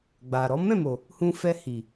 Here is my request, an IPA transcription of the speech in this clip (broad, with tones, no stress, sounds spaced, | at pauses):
ɡ͡b a˨ ɾ ɔ˨˦ m ɛ̃˦˨ m o˨ | h ũ˧ f ɛ˧ h i˨